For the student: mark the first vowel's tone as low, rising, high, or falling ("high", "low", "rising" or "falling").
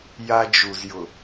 high